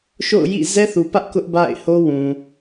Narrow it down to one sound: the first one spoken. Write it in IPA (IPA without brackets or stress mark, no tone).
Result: ʃ